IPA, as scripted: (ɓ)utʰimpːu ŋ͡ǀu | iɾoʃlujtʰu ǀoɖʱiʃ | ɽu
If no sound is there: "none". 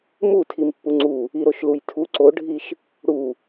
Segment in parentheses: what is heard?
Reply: m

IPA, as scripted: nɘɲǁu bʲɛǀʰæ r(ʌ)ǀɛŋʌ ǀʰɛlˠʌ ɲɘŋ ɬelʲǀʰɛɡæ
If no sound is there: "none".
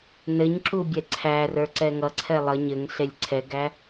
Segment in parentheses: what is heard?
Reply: ə˞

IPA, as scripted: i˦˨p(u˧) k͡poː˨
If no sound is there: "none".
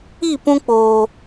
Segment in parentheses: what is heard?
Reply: ũ˧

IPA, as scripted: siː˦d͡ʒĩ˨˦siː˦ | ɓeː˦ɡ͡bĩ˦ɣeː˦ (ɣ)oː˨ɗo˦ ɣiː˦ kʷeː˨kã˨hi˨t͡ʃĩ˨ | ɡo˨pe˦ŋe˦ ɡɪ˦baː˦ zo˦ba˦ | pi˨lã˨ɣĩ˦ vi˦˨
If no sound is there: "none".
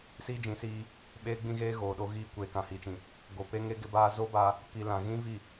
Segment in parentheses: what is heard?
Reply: ɣ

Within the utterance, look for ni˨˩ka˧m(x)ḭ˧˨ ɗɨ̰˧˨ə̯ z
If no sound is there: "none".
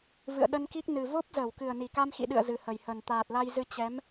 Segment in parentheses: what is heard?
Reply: x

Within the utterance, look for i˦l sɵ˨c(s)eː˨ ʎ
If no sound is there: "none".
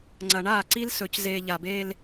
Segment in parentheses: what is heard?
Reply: z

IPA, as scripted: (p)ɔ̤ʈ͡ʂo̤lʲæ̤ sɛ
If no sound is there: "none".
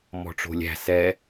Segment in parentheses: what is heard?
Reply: m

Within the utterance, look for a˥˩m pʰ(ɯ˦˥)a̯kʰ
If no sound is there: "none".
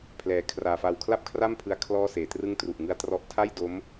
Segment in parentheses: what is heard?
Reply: ɯ˦˥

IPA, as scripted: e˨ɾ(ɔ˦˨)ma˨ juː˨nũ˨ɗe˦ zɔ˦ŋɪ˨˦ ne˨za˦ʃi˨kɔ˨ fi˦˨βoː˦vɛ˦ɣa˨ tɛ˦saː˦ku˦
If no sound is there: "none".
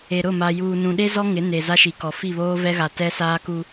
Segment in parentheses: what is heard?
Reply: ʊ˦˨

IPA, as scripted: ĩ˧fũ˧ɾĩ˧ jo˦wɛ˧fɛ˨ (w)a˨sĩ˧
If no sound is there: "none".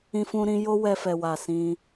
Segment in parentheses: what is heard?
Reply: w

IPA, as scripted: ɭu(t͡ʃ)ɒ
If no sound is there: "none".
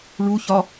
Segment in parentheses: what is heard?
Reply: ç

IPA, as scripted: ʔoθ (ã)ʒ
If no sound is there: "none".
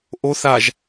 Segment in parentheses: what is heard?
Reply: a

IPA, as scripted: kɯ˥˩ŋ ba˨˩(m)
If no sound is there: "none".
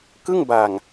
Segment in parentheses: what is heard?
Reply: ŋ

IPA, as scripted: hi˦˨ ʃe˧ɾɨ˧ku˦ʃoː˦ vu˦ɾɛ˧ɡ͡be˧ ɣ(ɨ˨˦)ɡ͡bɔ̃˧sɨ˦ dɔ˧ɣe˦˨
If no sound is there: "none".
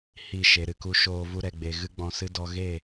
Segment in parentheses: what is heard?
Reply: ɨ˦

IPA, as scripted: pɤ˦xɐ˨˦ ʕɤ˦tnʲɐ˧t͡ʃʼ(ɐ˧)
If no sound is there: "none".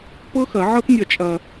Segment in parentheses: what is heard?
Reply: ɐ˧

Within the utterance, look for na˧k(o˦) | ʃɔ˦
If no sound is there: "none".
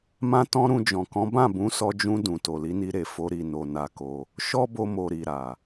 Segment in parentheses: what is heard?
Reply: o˧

